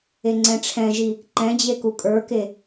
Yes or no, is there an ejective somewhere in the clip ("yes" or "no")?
yes